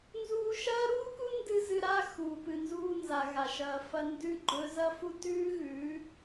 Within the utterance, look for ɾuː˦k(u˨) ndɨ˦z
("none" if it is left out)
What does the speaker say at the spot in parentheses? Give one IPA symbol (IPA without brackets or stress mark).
u˦